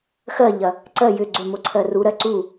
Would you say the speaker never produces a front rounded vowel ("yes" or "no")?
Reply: no